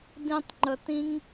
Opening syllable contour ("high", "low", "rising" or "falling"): high